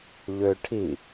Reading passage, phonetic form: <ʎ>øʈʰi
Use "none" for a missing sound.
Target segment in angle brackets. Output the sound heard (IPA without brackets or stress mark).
ʎ